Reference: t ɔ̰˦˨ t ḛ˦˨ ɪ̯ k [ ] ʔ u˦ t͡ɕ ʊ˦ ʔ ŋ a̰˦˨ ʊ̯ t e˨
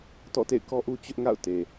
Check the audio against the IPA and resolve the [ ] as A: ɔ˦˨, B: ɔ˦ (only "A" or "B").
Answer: B